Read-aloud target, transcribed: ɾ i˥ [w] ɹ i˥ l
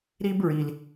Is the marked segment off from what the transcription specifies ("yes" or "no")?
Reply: yes